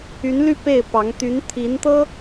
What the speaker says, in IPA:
y˧˥ n l y˥˧ p e˥˩ ɪ̯ p ɑ˧˥ ŋ t̪ y˧˥ n t̪ʰ i˧˥ n t̪ ɤ˥

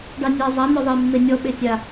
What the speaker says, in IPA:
ɖ ɑ nʲ a zˤ a n̪ ɔ ðˤ e mː e nʲ ɔ ɓ e tʲ a

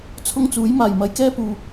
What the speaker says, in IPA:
t͡sʰ ʊ˥ ŋ t͡s uː˨˥ j m aː˨˩ j m ɐ˨˥ j k ɛː˥ p uː˨

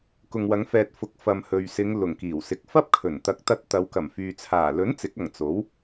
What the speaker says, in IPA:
k ʊ˨ ŋ w ɐ˨˧ ŋ f ɛː˨ t̚ f ʊ˨˥ k̚ f ɐ˨ m h ɵ˨ ɥ s ɪ˨˧ ŋ l ʊ˨˩ ŋ k iː˨˩ w s ɪ˨˥ k̚ f ɐ˥ p̚ kʰ ɵ˨˩ n t̪ ɐ˨˥ k̚ t̪ ɐ˧ t̚ t̪ ɐ˨˧ w k ɐ˨˩ m f yː˨ t͡sʰ aː˨˩ l ɵ˨˥ n t͡s ɪ˨˥ k̚ ɐ˨˩ ŋ t͡s o˨˥ w

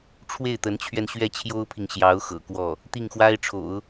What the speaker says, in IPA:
ʈ͡ʂʰ w e˥˩ ɪ̯ t̪ ə˧˥ n t͡ɕʰ ɥ ɛ˧ n ɕ ɥ ɛ˥˩ t͡ɕʰ j o˥ ʊ̯ pʰ i˨ ŋ ɕ j ɑ˧˥ ʊ̯ x ɤ̰˨˩ k w ɔ˥˩ | t̪ i˥˩ ŋ x w a˥ ɪ̯ ʈ͡ʂʰ o̰˨˩˦ ʊ̯

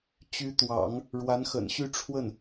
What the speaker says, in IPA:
t͡ɕ y˧˥ t̪ w ɑ̰˨˩˦ ŋ | ɻ w a˧˥ n x ə̰˨˩ n ɕ y˥˧ ʈ͡ʂʰ w ə˥˩ n

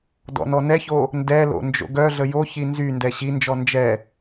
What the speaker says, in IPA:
d ɔ̰ n ɔ n ɛ ç o | n d ɛ l o̰ n d͡ʒ o̰ ɡ œ ɮ ə j o ç i n z y n d ɛ ɕ i n d͡ʒ ɔ n d͡ʒ ɛ

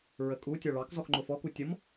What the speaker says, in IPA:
ɹ ə kʼ u tʲ ɒ ɭ ɑ k z ɔ x ŋ͡ǃ ʊ f ɔ k u tʲ ʌ m

